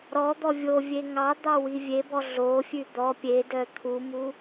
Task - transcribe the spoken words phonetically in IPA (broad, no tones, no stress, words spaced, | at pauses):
ɾɔ d̪ɔvʲovʲe ŋɑ d̪ɑwivʲebɔ ɮofʲʉ d̪ɔ pʲe dœt̪ʰumu